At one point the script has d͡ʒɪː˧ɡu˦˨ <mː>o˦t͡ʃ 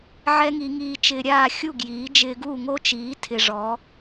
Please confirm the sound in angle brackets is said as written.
no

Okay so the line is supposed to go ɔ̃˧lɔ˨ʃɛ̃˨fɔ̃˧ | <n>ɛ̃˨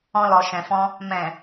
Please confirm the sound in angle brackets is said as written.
no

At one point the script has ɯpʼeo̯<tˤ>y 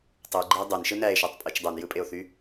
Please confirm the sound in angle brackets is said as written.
no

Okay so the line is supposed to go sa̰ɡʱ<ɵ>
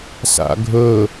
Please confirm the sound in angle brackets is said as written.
yes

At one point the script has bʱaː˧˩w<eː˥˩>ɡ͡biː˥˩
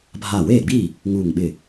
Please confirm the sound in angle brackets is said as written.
yes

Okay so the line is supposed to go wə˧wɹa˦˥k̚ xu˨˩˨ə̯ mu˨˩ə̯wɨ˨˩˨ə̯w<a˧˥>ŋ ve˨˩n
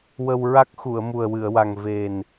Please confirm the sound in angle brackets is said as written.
no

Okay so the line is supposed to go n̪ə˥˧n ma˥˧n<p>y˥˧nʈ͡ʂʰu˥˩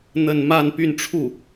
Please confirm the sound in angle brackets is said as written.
yes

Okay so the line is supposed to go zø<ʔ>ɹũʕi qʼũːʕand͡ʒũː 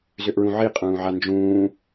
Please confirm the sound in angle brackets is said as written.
yes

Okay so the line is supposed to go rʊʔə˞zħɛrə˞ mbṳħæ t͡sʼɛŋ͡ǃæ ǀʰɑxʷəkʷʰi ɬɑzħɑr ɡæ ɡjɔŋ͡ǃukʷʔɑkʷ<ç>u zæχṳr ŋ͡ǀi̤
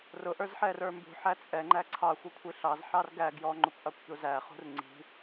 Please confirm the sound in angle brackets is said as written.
yes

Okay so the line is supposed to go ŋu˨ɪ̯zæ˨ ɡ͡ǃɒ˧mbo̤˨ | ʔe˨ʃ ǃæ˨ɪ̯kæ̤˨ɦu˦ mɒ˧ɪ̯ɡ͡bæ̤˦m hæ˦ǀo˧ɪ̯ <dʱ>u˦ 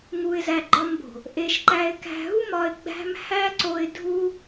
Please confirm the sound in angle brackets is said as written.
yes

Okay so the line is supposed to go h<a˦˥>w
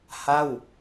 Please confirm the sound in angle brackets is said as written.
no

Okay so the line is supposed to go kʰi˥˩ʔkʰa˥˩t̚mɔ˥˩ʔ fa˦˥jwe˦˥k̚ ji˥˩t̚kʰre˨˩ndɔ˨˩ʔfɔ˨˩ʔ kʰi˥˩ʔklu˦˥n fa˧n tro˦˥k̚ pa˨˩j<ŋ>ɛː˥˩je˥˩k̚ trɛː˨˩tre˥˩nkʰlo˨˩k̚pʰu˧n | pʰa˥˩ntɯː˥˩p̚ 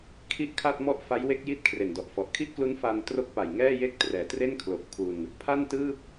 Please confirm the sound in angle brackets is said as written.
yes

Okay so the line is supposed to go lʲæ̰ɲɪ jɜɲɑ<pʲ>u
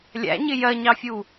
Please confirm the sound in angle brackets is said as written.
no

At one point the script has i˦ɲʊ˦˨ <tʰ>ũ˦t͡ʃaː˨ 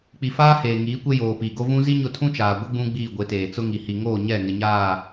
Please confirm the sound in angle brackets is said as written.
yes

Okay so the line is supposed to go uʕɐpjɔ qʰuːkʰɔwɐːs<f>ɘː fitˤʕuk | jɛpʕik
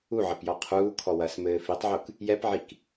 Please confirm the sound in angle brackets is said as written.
no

